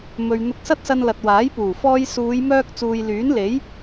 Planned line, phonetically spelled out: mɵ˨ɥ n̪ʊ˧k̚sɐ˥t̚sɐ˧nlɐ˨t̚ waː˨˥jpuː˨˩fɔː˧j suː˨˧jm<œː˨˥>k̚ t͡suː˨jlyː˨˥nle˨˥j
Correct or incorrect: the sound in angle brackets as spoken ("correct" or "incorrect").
incorrect